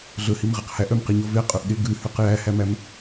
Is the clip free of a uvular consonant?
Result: no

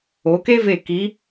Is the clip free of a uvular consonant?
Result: yes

